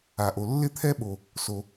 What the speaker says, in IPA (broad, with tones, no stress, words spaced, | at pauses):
a˩ʔo˩ lːɪ˥t̪ʰɛ˥ɓo˩ | so˩